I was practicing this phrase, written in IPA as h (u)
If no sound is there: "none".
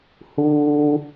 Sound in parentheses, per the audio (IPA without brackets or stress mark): uː